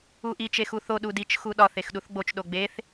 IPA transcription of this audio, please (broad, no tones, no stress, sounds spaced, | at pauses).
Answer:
u ʔ i t͡ʃ e x u θ o ɗ u d i t͡ʃ x u ɗ ɒ θ e x ɗ u θ ɡ͡b o t͡ʃ ɗ o ɡ͡b e θ